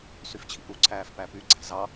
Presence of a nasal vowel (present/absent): absent